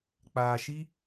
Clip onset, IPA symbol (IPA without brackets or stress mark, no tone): k͡p